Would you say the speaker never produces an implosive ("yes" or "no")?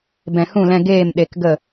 no